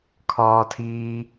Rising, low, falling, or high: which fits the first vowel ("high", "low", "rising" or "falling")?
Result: high